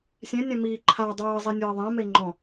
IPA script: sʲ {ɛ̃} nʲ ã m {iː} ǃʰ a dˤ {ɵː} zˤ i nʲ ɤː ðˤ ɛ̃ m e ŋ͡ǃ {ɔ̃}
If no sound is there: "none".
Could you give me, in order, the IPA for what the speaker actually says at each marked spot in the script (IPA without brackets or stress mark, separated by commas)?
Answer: ɛ̃, iː, ɤː, ɔ̃